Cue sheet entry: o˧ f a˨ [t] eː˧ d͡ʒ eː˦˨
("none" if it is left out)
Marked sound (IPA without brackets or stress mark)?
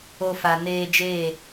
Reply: n